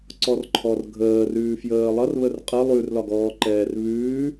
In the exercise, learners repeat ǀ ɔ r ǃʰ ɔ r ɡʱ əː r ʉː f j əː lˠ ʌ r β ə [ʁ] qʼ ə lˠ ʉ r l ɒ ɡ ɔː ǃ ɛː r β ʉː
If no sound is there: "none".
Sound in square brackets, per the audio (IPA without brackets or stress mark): r